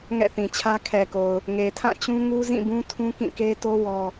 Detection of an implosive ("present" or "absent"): absent